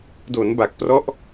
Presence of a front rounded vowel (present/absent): absent